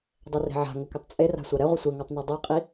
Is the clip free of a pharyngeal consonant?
no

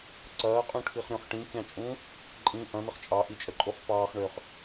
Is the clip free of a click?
no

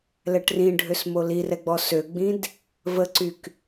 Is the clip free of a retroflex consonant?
no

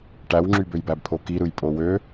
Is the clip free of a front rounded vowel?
no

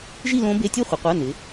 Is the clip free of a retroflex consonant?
yes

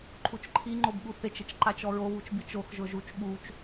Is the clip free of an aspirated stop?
no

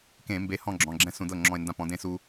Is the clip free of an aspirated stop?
yes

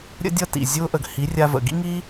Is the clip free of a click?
yes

